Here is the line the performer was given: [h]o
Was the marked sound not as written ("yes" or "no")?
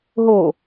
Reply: yes